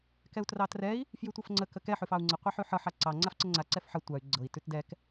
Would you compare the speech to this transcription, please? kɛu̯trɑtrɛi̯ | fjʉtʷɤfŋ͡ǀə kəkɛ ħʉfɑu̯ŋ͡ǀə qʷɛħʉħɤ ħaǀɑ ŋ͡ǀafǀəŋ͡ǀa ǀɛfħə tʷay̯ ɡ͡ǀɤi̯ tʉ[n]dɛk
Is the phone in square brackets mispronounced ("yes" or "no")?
yes